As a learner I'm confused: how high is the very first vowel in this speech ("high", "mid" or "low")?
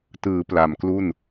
high